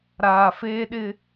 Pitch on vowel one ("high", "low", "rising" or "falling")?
low